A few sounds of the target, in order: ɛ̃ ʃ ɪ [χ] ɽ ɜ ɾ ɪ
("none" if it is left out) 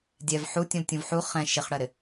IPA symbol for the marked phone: χ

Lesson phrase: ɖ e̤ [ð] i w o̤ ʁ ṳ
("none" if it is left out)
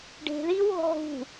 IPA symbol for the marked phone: ð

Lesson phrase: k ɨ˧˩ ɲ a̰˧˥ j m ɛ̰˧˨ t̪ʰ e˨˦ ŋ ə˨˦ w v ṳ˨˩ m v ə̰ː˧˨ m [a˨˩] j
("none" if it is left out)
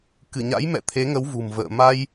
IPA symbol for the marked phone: a˧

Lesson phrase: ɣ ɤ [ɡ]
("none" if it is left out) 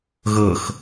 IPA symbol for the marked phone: x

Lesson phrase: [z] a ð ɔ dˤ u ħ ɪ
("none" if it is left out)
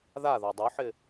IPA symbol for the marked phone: ð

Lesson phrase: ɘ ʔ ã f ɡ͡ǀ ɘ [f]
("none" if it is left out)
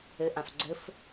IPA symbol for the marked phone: f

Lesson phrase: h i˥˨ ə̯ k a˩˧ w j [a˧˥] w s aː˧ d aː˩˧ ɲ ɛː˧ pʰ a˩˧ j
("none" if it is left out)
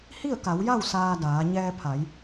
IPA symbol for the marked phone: a˥˨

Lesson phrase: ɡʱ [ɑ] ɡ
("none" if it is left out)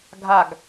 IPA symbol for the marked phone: a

